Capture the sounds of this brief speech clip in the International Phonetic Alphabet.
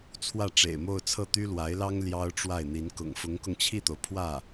t͡sʰ w ä˥˩ ʈ͡ʂ ḛ˨˩ ɪ̯ m o˥˧ ʊ̯ t͡sʰ ɤ˥˩ t̪ y˥ l w a˧˥ ɪ̯ l ɑ˥ ŋ l j ɑ˥ ʊ̯ ʈ͡ʂ w a˥˩ ɪ̯ n̪ i˧˥ n k ʊ̰˨˩ ŋ f ʊ˧˥ ŋ k ʊ˧ ŋ t͡ɕʰ i˥˩ t̪ o˩ ʊ̯ pʰ w ä˥˩

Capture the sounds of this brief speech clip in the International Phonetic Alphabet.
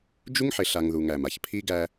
d͡ʒ u˦ ŋ ħ ɪ˨ ɬ a˨ ŋ ð u˨ ŋ æ˨ m a˨ ç pʰ i˦ ɡ æ˦

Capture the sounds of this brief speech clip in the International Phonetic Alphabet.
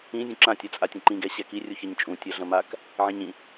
ĩ zʲ ũ ǁ ã tʲ a t͡sʼ a tʲ ɐ̃ ǃ ĩ ɡ ɛ ɕ ɛ k i rʲ u ç ɐ ɲ t͡ʃʼ ũ tʲ ɐ ɮ ɐ̃ m a k | ʕ ĩ ɲ ĩ

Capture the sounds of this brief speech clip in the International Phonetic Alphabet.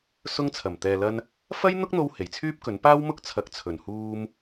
s ʊ˥ ŋ t͡sʰ ɐ˨˩ m t̪ ɛː˨ l ɐ˧ n | f ɐ˥ j n̪ ʊ˥ k̚ n̪ o˧ w h e˨˩ j t͡sʰ yː˥ p̚ k ɵ˨˥ n p aː˥ w m ʊ˥ k̚ t͡sʰ ɐ˨ k̚ t͡sʰ ɵ˨˩ n h uː˧ m

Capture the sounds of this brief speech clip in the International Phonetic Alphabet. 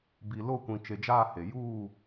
b i˨ l o˦˨ kʷ ĩ˨ t͡ʃ e˨ d͡ʒ aː˦˨ h e˨ j uː˦˨

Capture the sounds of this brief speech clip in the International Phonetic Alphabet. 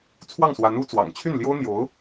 t͡sʰ w ɑ˥˩ ŋ s w a˧˥ n u˧˥ t͡s w ɑ̰˨˩ ŋ t͡ɕʰ y˥˩ n l j o˥ ʊ̯ n̪ j o˧˥ ʊ̯

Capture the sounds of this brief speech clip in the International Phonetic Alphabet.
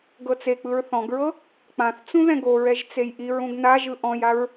ɡ ɤ t͡s e k͡p ɯ ɹ θ ɔ̃ ɡ ɹ ɤ | k͡p ã θ t͡s ũ ð ɛ̃ ɡ o ɹ ɛ ʒ t͡s e j ʔ i ɹ ũ ɡ n a ʒ ɯ ʔ ɔ̃ j a ɹ

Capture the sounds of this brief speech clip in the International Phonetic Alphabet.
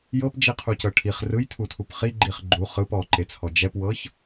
j ɤ p d͡ʒ i qʰ u c ɤ ʈʰ i χ r ɯ j tʰ u tʰ u p χ i ɡ͡ǃ i χ ɡ͡ǃ u χ ɯ p ɔ ǃ e t͡sʰ ɔ d͡ʒ ɛ p w ɤ ç

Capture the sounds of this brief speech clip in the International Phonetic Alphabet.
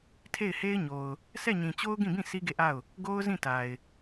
tʰ e˦˨ ɪ̯ h e˦ ɪ̯ ɲ o˨ ʊ̯ | s ɛ˦˨ ɲ ĩ˨ t͡ɕ o˦ ʊ̯ ɡ ĩ˦˨ b ĩ˦˨ s i˦ ɡ e˦˨ ʔ a˦˨ ʊ̯ | ɡ o˦ ʊ̯ z ĩ˦˨ t a˨ ɪ̯

